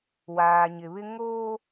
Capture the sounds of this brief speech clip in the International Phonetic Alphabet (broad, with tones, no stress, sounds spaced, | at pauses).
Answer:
w aː˨ ɲ ɪ˨ β ɪ˦ ŋ oː˦